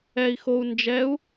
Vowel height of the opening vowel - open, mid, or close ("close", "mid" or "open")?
mid